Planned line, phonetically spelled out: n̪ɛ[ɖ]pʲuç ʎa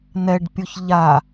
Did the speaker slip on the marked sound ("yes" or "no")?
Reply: no